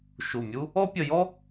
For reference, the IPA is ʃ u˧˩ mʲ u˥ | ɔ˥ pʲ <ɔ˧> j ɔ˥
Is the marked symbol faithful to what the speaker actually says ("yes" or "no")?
no